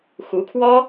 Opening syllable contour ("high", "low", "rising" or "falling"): rising